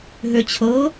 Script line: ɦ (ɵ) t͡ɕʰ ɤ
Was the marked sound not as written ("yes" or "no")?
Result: yes